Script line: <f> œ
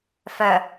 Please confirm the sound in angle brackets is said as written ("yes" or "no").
yes